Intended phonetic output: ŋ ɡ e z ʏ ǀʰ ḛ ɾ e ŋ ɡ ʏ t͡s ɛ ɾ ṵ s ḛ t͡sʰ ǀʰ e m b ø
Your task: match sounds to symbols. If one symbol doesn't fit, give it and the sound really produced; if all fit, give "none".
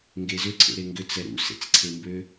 t͡sʰ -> t͡s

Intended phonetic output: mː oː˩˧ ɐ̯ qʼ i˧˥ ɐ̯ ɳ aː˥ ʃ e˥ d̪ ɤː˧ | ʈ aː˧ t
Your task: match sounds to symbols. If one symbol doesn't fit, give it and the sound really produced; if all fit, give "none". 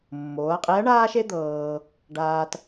ʈ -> ɖ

